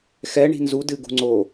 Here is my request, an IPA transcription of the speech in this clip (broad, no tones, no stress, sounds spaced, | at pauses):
x ɛ ɳ i̤ n z u d ɨ ɡ ṳ ŋ͡ǀ o